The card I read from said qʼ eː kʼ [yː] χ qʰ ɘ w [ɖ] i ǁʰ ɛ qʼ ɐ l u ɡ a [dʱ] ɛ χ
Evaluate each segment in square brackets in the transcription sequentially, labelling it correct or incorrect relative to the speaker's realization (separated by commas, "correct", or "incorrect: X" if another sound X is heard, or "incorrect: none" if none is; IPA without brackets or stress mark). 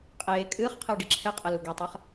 incorrect: ɨː, correct, incorrect: tˤ